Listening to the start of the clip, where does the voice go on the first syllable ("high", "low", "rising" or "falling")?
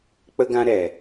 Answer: high